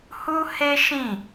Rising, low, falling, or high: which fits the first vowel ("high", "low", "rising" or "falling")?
high